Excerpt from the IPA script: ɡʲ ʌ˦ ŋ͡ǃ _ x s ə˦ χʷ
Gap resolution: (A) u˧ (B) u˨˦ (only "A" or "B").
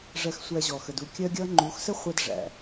B